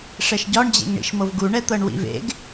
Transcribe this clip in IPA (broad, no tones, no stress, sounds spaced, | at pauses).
ʂ ɛ ʃ ɟ ɒ ɳ d͡ʑ ḛ ŋ ɳ ḭ ʃ m ɤ v ɡ u ɳ ɛ t̪ ɤ ɳ w ḭ v ḛ ɡ